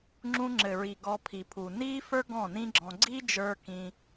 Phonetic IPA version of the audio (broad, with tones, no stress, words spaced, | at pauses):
ŋ͡ǁũ˧ŋ͡ǁɘ˨ɹi˨ ɡɔ˧pʰi˨ pʰu˨niː˦fə˞˦ ɡɔ̃˦˨nĩ˦ɡ͡ǁɔ̃˧ ɡ͡ǀi˦d͡ʒə˞˧ kĩ˦